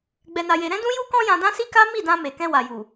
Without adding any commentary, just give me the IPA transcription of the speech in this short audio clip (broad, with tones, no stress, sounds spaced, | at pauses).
ɡ͡b ɛ˧ n a˧ j e˧ ɾ ɛ̃˦ d ũ˦ j u˦ k ɔ̃˦ j ã˧ d ã˦ s i˦ k a˦ m i˦˨ d ã˧ m e˨ k ɛ̃˧ w a˨ j u˨